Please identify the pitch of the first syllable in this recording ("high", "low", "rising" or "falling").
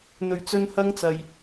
low